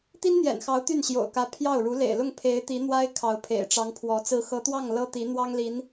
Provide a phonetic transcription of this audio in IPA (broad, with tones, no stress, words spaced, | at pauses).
t̪i˥nn̪jɛ̰˨˩nxɑ˧˥ʊ̯ t̪y˥˩nɕjo̰˨˩ʊ̯kä˧˥ pʰjɑ˥˩ʊ̯ ɻu˧˥lḛ˨˩ɪ̯lʊ˥˩ŋ pʰe˧˥ɪ̯ t̪i˧˥n̪wa˥ɪ̯ kʰɑ˧˥ʊ̯pʰḛ˨˩ɪ̯ʈ͡ʂɑ˧˥ŋpʰwɔ˧˥ t͡sɹ̩˧˥xɤ˧˥t̪wɑ˥˩ŋ lɤ˥t̪i˧˥ n̪wɑ˥ŋli˧˥n